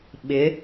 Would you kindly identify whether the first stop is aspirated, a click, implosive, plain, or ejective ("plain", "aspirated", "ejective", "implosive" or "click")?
implosive